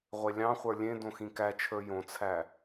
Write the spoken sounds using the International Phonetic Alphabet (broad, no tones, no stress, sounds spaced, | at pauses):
ʁʷ e lʲ ɑ̃ χʷ ə˞ lʲ ẽ d õ x ĩ k æ t͡ʃʰ ə˞ j õ t͡sʰ æ